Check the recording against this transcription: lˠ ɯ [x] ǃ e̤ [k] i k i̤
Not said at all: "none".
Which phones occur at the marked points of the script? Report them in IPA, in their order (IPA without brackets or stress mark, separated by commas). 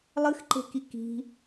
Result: x, k